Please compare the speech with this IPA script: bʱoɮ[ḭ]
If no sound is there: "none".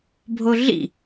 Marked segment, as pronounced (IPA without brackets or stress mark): ḭ